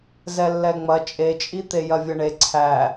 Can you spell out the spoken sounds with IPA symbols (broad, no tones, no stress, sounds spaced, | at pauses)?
z ɛ lː ɛ ŋ͡m ɐ t͡ʃʼ e t͡ʃʼ i t̪ e j ɐ vʲ ɐ ɳ e ǀʰ æ